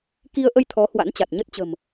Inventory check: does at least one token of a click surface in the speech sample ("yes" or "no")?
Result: no